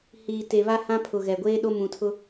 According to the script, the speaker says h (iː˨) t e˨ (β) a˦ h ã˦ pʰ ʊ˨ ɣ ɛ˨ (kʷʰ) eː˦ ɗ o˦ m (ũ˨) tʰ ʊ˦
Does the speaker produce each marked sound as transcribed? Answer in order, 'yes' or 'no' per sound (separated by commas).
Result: yes, yes, no, yes